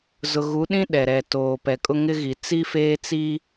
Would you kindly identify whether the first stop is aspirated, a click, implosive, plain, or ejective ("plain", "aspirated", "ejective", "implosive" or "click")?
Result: implosive